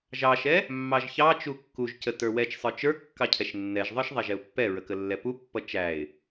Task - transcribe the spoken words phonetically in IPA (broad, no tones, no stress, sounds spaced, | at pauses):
ʒ ɑ ʃ ɛ | mː ɑ ʒ ç ɑ t͡ʃ u kː u ʒ c ə t ə˞ w ɛ t͡ʃ sˤ ə˞ t͡ʃ ə˞ kː ɑ cʰ ɛ ʃ nː ɛ ʒ ðˤ ə˞ ʃ ðˤ ɛ ʒ ɛ ʊ̯ pː ɛ ɹ ə k ə lː ɛ p u pː ʌ t͡ʃ æ ɪ̯